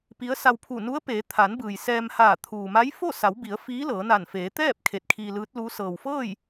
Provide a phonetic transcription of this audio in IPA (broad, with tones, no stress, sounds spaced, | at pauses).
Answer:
p i˧˥ ə̯ s a˧ w pʰ u˧˩ n u˧˥ ə̯ p eː˩˧ t̪ʰ a˩˧ n b ɯː˩ j s ɛː˧ m h aː˧˩ t̪ʰ uː˩ m a˧˥ j f o˥˨ s a˩˧ w b i˩˧ ə̯ f iː˧˥ l ɤː˩˧ n a˧˩ n f eː˩˧ t̪ ɛː˥˨ p̚ kʰ e˧˩ t̚ kʰ iː˧ l ɯː˧˥ t̚ l u˧˥ s ɤː˩ w f ɤː˥˨ j